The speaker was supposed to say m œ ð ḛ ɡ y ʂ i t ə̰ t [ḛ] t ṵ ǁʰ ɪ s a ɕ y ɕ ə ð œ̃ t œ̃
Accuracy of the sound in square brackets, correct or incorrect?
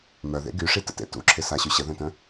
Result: correct